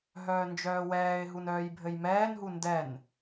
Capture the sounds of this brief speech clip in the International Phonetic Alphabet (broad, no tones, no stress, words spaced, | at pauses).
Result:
ɦœːnd͡ʒœːwɛːɪ̯ɦun œːjbʱɘjmɛːnɦu ndɛn